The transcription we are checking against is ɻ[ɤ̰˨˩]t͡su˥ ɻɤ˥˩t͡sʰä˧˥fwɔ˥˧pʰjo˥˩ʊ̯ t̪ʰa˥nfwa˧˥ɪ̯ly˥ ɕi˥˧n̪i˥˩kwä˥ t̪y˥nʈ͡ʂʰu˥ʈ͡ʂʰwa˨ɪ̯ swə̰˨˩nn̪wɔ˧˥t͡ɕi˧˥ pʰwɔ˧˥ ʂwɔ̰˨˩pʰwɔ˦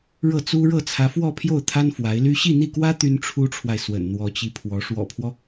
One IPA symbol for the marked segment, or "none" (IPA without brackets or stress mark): ɤ˥˩